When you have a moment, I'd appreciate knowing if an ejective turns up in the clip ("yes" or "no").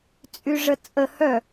yes